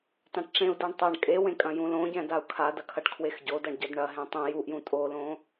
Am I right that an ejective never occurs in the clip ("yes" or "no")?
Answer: no